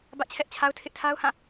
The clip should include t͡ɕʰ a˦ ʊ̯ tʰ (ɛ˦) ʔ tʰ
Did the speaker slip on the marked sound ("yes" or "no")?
yes